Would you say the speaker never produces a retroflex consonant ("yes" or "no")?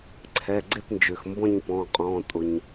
yes